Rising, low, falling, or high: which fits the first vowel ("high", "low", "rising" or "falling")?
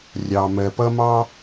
low